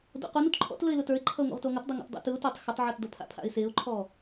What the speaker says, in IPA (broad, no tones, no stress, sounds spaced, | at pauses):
d o̰ q u n u t ǃʰ ɔ̰ t l ə ɪ̯ l ʊ t ə˞ ɪ̯ ǃʰ ʌ ʊ̯ ŋ o̰ ʁ t o ŋ ʌ t dˤ o ŋ o̰ t dˤ o̰ t ɯ ʊ̯ t o tˤ x ə tˤ ʕ ə˞ t d ʌ pʰ a̰ pʰ a̰ ɪ̯ s e ʊ̯ ǃʰ ɔ